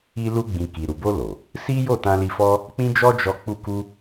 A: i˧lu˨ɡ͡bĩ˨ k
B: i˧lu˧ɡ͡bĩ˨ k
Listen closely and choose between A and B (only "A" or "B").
B